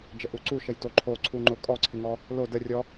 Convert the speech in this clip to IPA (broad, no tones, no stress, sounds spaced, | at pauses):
d͡ʒ ə ʔ u ǀ u ʃ ə j t o ǃʰ o ǀʰ u ŋ͡ǃ ʊ kʼ ɔ ǀʰ ɪ ŋ ɔ | l o d ə rʲ ɔ